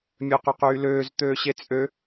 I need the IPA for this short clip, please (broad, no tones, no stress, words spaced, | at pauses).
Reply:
mʲøqyqyːløːz t̪øːɕet͡sʼø